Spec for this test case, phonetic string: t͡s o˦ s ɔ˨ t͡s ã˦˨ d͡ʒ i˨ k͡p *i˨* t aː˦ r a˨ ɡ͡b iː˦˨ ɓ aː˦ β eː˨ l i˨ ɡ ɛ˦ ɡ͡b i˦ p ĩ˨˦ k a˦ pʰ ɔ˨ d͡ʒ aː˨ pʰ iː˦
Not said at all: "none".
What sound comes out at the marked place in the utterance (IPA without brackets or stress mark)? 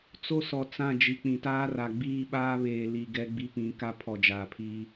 ĩ˨